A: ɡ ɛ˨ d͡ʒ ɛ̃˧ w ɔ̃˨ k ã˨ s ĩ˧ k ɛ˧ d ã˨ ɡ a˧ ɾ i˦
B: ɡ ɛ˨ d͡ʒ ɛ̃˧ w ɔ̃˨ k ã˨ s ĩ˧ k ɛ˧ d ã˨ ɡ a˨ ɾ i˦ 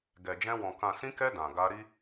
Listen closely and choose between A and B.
A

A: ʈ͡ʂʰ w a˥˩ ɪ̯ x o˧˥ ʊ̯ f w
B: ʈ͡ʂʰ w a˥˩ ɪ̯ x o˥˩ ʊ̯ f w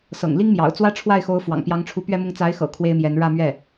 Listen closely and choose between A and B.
A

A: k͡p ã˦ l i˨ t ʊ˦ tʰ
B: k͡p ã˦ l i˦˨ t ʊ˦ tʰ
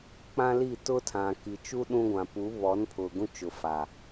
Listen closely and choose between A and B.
B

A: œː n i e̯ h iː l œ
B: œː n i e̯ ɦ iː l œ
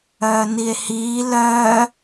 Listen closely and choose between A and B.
A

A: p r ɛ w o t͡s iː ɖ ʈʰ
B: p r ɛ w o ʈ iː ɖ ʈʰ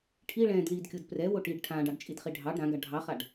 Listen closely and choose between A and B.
B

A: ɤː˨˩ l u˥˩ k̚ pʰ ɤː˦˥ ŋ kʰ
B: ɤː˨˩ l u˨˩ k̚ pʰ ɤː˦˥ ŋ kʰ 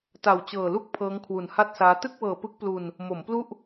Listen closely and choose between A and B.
A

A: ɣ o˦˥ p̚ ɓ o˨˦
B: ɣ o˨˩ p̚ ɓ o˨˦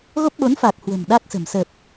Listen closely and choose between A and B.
A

